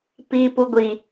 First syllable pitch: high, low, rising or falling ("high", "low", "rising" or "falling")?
low